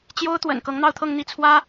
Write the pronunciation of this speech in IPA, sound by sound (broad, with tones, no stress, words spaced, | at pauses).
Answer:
t͡ɕjo˥ʊ̯t̪wə̰˨˩n kɤ˧˥ŋn̪ɑ˥˧ʊ̯t̪ʰɤ˥˧ŋ n̪i˥˩t͡sʰwä˥